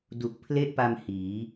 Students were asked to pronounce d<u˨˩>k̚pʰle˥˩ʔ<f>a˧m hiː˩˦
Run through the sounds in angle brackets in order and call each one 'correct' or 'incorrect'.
correct, incorrect: p

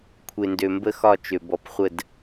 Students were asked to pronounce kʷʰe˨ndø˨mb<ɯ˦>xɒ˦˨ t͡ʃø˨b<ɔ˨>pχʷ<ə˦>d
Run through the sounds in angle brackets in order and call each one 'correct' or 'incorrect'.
incorrect: ə˦, correct, incorrect: ə˦˨

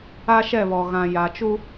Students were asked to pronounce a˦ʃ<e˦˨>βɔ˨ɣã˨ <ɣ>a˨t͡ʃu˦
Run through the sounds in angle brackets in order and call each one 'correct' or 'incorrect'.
incorrect: ɛ˦˨, incorrect: j

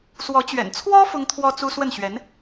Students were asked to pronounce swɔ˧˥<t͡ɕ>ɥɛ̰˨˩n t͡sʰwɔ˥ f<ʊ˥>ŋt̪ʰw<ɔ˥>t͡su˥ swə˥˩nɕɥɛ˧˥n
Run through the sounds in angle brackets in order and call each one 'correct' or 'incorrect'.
correct, correct, correct

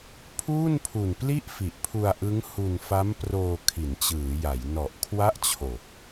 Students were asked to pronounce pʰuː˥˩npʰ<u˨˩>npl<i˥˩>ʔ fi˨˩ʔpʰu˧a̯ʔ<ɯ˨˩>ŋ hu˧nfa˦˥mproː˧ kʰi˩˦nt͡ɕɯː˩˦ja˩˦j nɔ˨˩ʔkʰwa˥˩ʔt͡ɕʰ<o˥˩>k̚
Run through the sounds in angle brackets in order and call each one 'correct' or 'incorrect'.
correct, correct, incorrect: ɯ˦˥, incorrect: o˨˩

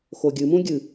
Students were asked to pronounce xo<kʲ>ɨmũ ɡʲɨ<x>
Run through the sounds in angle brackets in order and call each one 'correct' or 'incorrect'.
incorrect: ɡʲ, incorrect: none

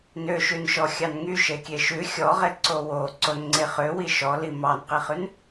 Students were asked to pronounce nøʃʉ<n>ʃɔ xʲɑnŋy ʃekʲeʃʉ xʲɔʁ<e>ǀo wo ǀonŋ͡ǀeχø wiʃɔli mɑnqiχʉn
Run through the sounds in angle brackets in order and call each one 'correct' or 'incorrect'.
correct, correct

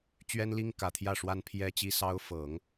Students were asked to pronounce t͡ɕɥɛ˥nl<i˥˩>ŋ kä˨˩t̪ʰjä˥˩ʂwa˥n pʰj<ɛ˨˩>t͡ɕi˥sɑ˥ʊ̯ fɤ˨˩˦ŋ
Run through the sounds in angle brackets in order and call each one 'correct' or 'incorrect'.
incorrect: i˥, incorrect: ɛ˥

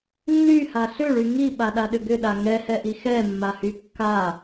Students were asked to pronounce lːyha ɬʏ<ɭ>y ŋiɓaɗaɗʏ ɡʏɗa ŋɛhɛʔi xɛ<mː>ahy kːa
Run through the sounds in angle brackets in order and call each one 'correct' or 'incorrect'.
correct, correct

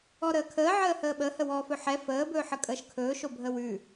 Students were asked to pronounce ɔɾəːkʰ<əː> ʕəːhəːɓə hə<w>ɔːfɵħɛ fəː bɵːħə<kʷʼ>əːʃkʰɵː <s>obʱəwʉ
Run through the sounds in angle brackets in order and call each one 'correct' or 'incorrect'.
correct, correct, incorrect: kʼ, incorrect: ʃ

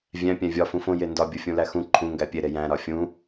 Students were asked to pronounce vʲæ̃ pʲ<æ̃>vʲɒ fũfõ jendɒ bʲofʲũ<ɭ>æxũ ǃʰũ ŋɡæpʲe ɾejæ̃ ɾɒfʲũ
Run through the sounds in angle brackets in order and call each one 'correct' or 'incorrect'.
correct, incorrect: l

